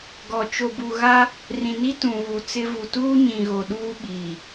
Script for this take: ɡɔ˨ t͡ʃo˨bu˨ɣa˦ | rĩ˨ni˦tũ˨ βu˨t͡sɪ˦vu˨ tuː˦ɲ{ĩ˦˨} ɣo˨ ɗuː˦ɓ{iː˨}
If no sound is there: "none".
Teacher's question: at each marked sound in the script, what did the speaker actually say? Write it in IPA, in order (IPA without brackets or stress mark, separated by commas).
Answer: ĩ˨, iː˨